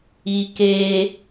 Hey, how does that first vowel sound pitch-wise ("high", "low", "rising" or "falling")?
low